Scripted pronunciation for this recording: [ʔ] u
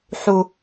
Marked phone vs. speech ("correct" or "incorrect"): incorrect